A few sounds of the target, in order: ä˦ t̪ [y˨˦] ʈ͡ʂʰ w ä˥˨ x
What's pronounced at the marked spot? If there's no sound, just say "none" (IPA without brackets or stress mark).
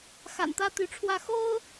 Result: y˨˦